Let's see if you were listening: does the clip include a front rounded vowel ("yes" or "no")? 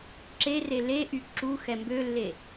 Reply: yes